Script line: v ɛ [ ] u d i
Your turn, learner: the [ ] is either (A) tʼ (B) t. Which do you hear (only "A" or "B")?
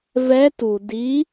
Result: B